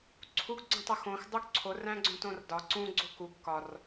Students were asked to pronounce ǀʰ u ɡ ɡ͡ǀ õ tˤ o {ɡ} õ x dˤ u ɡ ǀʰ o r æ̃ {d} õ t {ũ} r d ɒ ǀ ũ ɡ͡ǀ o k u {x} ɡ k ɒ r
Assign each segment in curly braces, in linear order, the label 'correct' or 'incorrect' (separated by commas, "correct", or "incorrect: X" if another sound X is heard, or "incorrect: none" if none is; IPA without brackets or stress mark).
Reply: incorrect: x, incorrect: ɡ͡ǀ, incorrect: õ, incorrect: none